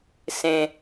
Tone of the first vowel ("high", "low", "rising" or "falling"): low